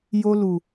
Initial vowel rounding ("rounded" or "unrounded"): rounded